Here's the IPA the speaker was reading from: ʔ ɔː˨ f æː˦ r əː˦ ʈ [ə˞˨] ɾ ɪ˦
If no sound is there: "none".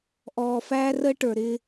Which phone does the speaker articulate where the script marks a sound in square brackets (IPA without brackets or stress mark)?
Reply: ə˞˨